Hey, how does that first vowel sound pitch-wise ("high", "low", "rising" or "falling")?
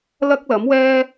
high